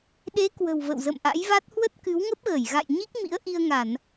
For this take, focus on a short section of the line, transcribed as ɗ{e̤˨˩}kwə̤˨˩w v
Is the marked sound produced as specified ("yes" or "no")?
no